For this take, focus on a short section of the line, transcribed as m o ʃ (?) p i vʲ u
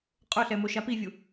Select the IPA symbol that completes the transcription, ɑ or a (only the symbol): a